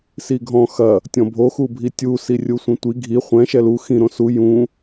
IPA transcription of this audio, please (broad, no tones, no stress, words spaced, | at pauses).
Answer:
siɡʱɔ̃ xɐ | tʲɔ̃bʱoxu bʱitʲusi rʲusʷĩtʷi ɡʱi χʷɛ̃ ʃɛlu xĩ ɾõsu jũ